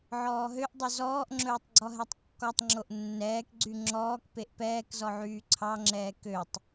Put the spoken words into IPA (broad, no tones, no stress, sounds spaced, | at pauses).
ʕ ɔː ɦ ø ʔ dˤ ɵ z ɔː ʔ ŋ͡ǁ ɵː tˤ ɡ͡ǀ ɔ ɦ ɛ tˤ kː ɔ tˤ ŋ͡ǁ o ʔ nː ɛː k ɡ͡ǀ y ŋ͡ǁ ɔː k p e ʔ p ɛː k z ɔ ʕ yː ǀʰ ɑ ŋ͡ǁ ɛː k ø tˤ